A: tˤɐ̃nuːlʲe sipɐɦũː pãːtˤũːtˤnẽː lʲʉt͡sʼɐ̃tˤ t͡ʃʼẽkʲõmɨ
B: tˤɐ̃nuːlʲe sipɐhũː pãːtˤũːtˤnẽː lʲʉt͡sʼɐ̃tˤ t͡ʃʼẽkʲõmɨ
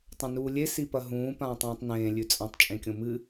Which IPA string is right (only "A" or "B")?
A